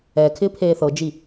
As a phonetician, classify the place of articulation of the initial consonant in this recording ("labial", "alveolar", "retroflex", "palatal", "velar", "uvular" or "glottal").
velar